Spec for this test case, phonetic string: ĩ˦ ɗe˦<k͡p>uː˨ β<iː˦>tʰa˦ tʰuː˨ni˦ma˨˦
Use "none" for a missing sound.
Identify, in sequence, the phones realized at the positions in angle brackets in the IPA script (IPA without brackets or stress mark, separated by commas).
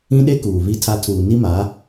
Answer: k, i˦